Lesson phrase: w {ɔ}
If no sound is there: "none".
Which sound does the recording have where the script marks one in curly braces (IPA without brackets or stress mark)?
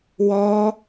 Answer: ɔ